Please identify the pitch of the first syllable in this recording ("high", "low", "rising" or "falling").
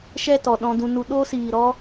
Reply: falling